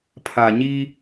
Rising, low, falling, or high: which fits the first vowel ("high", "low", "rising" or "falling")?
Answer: low